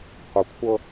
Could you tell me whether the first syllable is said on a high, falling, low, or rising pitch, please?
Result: low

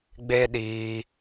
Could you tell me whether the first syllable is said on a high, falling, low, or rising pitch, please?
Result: high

